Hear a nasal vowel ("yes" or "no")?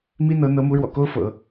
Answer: no